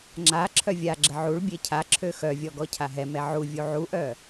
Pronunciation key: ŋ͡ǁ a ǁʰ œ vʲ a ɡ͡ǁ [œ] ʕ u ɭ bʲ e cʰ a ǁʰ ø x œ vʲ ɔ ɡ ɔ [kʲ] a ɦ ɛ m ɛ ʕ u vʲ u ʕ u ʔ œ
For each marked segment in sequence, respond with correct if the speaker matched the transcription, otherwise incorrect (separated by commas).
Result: incorrect, incorrect